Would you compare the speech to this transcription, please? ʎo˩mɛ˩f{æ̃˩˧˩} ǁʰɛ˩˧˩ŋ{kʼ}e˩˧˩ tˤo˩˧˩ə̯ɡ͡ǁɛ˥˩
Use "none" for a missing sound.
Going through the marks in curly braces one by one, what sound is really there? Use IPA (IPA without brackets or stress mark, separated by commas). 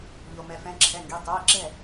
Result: ɛ̃˩˧˩, ɡ